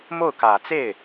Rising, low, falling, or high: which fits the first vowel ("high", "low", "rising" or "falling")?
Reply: falling